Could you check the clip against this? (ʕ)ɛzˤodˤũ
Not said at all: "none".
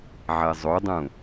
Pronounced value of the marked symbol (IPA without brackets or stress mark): ʕ